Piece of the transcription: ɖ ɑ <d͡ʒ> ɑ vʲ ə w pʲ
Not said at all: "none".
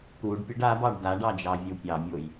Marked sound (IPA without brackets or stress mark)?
d͡ʒ